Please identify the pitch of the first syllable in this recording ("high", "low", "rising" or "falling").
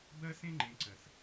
high